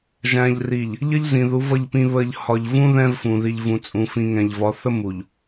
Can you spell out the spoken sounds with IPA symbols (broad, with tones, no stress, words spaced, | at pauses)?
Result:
ʒæ̃˨ʎri˨ʎ | ʎʌ˦ʎzĩ˨ðu˨˦v ʌ˨ʎpĩ˨βə˨ʎ hɒ˨ʎvũ˦ ðɛ̃˦vfũ˨ ði˨ʎvũ˨t͡sʼũ˨fĩ˨ ŋɛ̃˨ʎ vɒ˨˦θə˦ mu˨ʎ